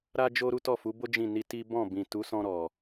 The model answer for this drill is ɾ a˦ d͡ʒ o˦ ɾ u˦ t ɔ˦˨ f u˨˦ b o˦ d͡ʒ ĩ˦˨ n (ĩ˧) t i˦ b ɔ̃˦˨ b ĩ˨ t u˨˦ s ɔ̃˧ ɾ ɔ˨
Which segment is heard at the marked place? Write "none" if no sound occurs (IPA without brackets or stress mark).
i˧